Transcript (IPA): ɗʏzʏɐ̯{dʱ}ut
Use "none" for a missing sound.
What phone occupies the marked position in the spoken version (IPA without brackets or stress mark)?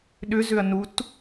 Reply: n